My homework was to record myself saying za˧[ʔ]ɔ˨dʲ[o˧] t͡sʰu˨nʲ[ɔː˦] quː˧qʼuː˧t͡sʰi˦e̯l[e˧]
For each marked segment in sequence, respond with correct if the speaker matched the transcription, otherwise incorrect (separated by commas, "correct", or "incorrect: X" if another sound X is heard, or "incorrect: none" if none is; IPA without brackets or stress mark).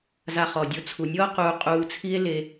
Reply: incorrect: χ, correct, correct, correct